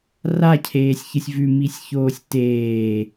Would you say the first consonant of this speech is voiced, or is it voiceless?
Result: voiced